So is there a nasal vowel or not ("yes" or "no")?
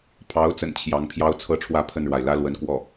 no